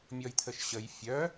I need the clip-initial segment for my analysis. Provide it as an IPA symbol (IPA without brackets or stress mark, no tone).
mʲ